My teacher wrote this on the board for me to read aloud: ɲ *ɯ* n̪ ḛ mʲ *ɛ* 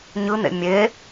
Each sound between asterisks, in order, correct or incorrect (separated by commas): correct, incorrect